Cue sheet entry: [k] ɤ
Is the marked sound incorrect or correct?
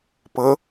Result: incorrect